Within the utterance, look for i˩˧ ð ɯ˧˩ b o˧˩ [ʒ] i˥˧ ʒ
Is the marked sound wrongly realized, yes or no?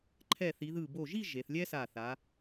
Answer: no